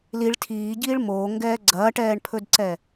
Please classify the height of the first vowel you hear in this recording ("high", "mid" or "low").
high